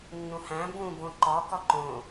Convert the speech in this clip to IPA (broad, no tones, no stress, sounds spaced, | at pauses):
nː ũ h æ̃ b ũ b õ ǃ ɒ k ɒ ǃ õ